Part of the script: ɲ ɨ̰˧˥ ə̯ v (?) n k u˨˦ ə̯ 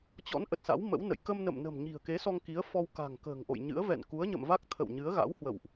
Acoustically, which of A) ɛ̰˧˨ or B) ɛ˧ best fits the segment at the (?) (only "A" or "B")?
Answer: A